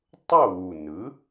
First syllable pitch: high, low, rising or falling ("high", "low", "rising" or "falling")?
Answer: falling